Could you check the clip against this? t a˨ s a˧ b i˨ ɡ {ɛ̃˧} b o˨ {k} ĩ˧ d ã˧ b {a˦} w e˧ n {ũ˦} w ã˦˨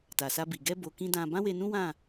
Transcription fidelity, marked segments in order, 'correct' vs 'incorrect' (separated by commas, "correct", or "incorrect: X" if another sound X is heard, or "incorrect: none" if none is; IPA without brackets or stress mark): incorrect: ɛ˧, correct, incorrect: ã˦, correct